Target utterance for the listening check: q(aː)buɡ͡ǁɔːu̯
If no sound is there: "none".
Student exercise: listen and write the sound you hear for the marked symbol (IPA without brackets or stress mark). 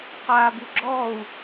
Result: aː